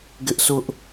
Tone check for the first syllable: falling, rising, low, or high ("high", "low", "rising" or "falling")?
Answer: high